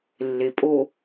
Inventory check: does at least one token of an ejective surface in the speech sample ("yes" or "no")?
yes